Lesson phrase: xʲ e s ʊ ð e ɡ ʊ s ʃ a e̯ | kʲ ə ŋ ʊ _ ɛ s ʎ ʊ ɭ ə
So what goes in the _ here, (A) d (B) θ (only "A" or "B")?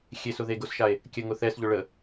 B